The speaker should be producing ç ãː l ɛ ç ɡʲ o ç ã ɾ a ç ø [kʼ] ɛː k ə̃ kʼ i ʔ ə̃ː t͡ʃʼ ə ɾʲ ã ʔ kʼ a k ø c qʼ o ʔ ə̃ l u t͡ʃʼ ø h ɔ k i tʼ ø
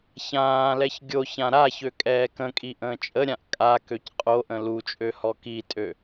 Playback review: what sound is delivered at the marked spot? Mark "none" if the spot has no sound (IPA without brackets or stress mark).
kʼ